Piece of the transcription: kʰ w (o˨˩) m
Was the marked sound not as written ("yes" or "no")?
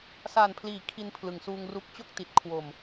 no